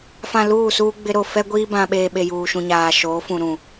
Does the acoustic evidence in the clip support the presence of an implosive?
yes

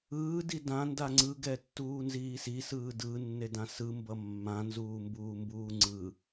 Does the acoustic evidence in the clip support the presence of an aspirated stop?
no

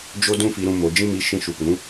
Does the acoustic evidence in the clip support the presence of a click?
no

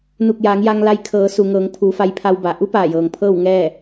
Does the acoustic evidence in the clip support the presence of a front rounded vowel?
no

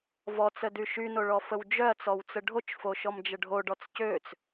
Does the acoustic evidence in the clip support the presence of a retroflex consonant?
yes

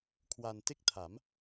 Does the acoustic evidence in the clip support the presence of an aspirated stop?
yes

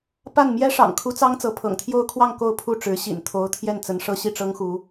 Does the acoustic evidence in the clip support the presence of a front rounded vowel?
no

